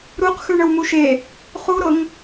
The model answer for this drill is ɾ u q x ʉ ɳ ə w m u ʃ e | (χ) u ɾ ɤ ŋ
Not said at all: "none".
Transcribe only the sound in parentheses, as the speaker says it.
χ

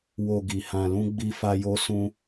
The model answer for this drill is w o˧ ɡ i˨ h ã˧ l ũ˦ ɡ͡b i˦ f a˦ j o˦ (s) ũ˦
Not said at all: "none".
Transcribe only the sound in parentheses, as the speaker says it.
s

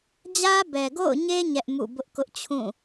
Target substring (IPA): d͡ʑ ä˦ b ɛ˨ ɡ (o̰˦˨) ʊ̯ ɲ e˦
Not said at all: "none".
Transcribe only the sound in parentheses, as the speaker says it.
o̰˦˨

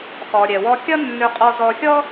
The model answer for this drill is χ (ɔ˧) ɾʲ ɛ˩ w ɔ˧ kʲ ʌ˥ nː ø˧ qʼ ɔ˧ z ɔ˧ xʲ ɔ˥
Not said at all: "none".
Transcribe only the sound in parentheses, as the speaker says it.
ɔ˩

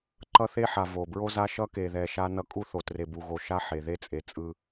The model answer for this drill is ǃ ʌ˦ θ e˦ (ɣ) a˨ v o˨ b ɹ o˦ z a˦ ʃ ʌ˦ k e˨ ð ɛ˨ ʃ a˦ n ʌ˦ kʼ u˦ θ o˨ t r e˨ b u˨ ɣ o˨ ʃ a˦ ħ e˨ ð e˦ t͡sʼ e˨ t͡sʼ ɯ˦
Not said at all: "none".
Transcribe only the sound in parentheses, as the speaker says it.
ħ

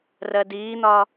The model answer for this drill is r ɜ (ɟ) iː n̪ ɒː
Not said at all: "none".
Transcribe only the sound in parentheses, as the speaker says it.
d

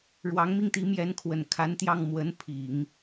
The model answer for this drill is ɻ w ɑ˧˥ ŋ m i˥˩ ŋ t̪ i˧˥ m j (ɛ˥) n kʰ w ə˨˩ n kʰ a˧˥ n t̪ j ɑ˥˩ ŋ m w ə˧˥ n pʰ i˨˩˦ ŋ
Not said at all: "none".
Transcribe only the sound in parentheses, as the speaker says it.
ɛ˧˥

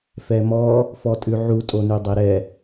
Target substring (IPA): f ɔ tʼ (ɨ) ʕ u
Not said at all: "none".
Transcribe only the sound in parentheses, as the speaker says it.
ʉ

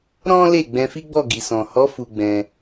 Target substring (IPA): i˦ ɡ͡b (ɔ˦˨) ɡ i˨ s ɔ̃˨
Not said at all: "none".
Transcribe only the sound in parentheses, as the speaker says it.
ɔ˦˨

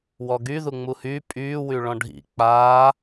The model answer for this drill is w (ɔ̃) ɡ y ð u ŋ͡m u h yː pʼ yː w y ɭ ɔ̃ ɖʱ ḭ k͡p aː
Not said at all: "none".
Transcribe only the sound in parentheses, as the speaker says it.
ɔ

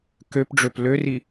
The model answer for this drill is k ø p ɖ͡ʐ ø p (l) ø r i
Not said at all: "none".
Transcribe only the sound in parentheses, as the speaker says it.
l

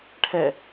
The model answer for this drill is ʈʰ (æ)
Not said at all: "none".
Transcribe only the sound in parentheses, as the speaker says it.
ɛ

